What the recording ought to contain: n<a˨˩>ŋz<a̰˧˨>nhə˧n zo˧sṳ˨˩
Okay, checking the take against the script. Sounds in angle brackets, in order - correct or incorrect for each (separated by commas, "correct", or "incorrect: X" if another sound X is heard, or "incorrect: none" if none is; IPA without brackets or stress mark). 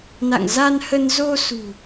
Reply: incorrect: a̰˧˨, incorrect: a˧